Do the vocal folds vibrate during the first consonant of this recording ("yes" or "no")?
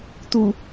no